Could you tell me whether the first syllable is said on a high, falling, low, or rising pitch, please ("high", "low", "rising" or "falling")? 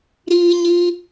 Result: high